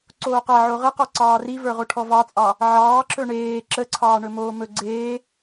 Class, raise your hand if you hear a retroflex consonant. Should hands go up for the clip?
yes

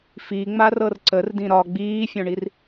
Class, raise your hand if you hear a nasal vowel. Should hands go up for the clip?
yes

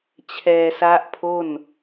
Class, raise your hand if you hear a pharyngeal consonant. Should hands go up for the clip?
no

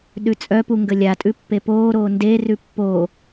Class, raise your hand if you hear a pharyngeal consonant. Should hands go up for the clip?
no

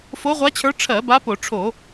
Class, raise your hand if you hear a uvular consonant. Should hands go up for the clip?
yes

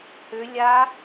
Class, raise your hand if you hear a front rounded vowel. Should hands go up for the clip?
yes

